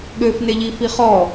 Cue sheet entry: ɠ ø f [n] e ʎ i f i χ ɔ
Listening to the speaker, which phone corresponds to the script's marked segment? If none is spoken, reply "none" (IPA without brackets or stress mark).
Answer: n